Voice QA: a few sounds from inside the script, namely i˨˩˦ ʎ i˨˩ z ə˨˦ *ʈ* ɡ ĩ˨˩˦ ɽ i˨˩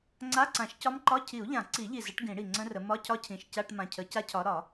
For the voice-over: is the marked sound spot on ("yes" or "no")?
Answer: yes